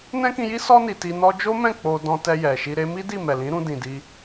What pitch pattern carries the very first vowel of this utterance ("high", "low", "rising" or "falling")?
high